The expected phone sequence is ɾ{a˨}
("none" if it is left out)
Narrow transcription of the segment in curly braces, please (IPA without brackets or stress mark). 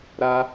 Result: a˦